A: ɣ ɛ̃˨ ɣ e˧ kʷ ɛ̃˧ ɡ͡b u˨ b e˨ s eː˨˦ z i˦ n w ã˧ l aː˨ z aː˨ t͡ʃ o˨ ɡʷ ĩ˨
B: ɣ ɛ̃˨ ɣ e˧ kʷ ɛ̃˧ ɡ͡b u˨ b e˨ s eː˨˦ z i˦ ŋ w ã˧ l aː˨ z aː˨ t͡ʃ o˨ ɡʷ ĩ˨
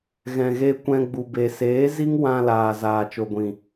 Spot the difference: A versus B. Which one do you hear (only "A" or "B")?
B